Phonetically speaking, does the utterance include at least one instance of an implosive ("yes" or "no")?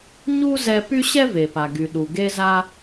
yes